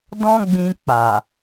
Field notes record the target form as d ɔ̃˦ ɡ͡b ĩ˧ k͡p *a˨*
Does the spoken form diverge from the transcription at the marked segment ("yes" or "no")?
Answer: no